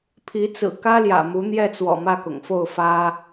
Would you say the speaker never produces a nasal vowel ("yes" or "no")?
yes